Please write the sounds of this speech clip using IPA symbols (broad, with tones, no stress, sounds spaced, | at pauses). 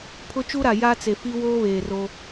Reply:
pʰ ʊ˦ t͡ʃ u˦ ɾ a˨ j a˦ t͡s e˨ f i˦ w oː˦ β eː˨ r o˦